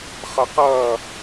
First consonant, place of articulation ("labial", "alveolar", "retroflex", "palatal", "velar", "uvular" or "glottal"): uvular